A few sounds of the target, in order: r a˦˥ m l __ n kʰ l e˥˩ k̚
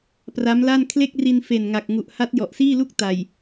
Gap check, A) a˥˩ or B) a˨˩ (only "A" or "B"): A